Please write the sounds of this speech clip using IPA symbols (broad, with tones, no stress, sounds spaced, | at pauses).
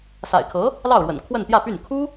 s a̰˨˩ ɪ̯ kʰ ɤ˧˥ | l ɑ˥˩ ʊ̯ ɻ w ə̰˨˩ n kʰ w ə˥˧ n t̪ j ä˥˧ p y˥˩ n kʰ u˥